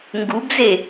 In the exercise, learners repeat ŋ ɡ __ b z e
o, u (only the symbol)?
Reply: u